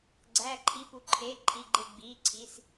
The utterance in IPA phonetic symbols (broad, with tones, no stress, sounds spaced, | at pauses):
ɡ͡ǀ æː˩˧˩ ǃʰ iː˩˧˩ p u˧˩ ǃʰ eː˩˧˩ ǃʰ i˩˧˩ ɡ͡ǃ e˧˩ ɡ͡b iː˩˧˩ ǀʰ i˩˧˩ s